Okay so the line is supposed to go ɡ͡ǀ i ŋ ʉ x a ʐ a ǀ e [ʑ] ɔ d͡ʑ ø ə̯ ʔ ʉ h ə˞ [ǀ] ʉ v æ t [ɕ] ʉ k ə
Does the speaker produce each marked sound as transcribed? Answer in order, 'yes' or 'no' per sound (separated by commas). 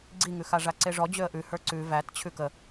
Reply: no, yes, no